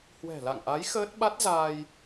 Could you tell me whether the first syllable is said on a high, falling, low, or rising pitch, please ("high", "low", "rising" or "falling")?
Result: low